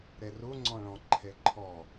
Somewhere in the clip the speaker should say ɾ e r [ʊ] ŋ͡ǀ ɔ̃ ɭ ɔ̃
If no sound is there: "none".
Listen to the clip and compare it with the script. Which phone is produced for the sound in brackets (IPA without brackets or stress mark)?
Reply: u